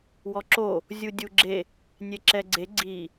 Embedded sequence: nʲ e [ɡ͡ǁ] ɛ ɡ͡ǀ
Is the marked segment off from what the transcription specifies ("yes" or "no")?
yes